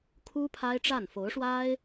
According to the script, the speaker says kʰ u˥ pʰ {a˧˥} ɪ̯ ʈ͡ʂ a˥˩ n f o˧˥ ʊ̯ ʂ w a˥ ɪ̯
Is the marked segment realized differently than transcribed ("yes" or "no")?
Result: yes